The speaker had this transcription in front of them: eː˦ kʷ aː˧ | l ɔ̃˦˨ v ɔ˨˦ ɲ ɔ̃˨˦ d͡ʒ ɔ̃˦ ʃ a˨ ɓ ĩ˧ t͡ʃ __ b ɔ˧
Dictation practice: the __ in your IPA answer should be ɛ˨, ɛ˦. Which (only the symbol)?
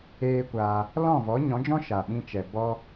ɛ˨